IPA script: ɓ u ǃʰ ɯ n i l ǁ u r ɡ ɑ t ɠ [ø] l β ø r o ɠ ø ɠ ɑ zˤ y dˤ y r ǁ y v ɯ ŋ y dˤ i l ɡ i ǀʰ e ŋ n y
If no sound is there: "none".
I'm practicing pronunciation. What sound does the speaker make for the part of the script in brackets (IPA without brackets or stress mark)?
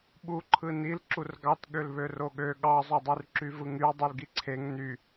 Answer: ø